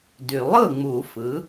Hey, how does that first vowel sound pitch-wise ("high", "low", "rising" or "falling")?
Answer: low